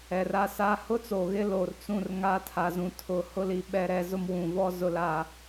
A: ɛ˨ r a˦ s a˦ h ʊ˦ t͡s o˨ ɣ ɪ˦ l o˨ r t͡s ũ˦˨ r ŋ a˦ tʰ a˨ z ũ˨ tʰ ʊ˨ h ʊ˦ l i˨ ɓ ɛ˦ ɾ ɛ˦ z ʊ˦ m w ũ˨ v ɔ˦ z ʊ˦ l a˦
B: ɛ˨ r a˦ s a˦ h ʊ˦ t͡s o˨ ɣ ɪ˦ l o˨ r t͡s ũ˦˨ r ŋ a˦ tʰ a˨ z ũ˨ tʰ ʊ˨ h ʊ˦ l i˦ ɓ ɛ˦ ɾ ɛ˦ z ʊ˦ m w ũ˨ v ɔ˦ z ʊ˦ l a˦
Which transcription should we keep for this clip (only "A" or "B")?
A